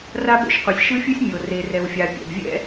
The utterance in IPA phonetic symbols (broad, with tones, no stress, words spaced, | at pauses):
ra˥bo̰˥ʃqʷi˩sʲ ʃɯ˥fʲu˥sʲ mʲo˩ re˩rɛ˩wfʲa˩ pʲɛ̰˩bvʲɛ̰˥